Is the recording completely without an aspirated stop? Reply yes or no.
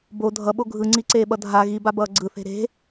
yes